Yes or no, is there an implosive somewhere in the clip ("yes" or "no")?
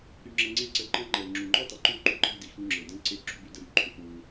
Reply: no